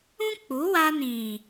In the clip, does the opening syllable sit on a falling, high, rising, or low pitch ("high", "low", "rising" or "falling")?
high